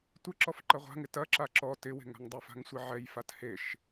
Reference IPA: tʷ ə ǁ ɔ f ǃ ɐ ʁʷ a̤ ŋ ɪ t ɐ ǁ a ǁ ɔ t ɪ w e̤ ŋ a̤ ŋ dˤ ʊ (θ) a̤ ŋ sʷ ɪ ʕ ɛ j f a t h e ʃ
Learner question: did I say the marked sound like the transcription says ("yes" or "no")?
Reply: no